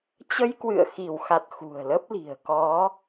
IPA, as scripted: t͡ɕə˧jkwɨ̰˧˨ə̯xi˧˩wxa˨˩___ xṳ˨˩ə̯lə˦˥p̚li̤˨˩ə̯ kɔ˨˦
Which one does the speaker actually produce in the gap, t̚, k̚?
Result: t̚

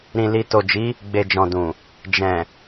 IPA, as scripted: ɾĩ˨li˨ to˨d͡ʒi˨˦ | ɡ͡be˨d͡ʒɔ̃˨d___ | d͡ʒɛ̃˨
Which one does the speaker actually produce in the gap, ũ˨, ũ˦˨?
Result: ũ˨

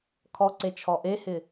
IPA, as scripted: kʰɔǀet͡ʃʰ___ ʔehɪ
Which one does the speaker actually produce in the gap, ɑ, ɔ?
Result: ɔ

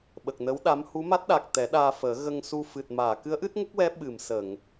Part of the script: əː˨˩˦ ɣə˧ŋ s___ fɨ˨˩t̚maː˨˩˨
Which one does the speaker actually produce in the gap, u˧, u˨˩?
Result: u˧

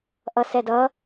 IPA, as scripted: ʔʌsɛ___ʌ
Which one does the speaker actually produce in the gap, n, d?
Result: d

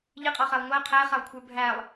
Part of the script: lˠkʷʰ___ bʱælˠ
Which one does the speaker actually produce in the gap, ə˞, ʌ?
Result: ə˞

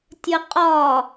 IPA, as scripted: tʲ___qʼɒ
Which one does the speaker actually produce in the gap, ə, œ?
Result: ə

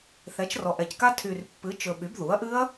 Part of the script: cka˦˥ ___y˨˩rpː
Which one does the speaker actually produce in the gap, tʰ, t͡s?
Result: tʰ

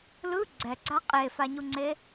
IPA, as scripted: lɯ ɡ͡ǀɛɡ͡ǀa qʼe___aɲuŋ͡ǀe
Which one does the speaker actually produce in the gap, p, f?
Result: f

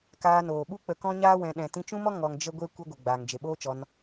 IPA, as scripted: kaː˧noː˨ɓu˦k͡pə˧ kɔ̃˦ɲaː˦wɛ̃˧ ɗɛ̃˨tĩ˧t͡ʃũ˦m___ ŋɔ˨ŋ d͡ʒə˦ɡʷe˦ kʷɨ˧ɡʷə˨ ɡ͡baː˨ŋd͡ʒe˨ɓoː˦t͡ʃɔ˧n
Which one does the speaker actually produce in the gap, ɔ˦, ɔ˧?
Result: ɔ˦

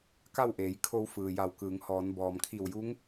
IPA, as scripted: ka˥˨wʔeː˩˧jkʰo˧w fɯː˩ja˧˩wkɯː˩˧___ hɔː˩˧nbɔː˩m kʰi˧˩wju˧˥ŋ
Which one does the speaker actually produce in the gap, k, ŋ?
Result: ŋ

